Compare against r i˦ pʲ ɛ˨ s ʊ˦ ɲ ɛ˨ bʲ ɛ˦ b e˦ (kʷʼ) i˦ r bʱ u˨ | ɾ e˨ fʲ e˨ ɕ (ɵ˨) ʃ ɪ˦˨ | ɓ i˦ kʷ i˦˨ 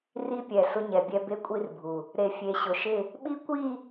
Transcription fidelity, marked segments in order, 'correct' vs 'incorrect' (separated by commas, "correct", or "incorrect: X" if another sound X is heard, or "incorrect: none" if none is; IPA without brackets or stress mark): correct, incorrect: ʊ˨